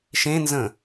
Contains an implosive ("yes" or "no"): no